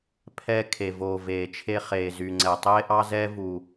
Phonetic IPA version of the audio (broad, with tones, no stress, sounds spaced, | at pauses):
pʰ ɛ˧ kʰ e˨ v oː˨ v eː˨ t͡ʃʰ e˧ χ eː˨ z y˨ ŋ͡ǀ ɛ˨ tˤ eː˦ ʔ ɑ˦ z ɛː˦ v u˨